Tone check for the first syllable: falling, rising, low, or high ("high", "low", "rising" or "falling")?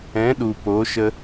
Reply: rising